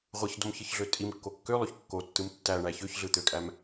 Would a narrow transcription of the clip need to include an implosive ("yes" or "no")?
no